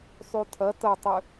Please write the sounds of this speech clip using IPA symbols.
sˤ y tʰ ɐ t ɐ tˤ ʏ

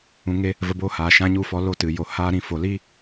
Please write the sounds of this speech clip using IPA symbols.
ũ˧ ŋ e˧ | v ə˧ b oː˦ h aː˨ ʃ ã˧ ɲ u˦˨ f ɔ˧ l o˦˨ t ɨ˨ j o˨ h aː˦ ɾ ĩ˧ f o˨ l iː˦

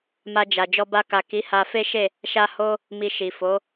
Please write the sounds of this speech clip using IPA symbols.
m a˧ d͡ʒ a˨ d͡ʒ ɔ˧ b a˧ k a˨ k i˨˦ h a˧ f e˦ ʃ e˦˨ | ʃ a˦ h o˦ | m i˧ ʃ i˨ f o˨˦

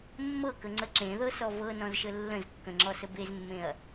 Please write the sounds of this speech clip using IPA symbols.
mː ɤ k ə ŋ͡ǀ ə ǁ ẽ ð ɤ s ɔ v ɤ n ɔ̃ z ʃ ə lː ə̃ z kː ə̃ ŋ͡ǁ ɔ s ə b e z mː ẽ ɐ̯

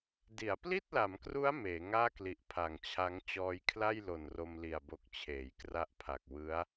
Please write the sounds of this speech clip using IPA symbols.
d i˩˦ a̯ p l i˥˩ t̚ l a˩˦ m k r u˦˥ a̯ m eː˩˦ ŋ aː˥˩ k l i˨˩ ʔ pʰ a˨˩ ŋ t͡ɕʰ a˦˥ ŋ t͡ɕ ɔː˧ j kʰ l a˥˩ j l o˨˩ n r o˧ m l i˨˩ a̯ b o˨˩ k̚ t͡ɕʰ eː˩˦ j k r a˦˥ ʔ pʰ a˨˩ k̚ w ɯ˦˥ a̯

